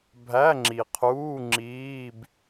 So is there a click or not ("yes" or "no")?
yes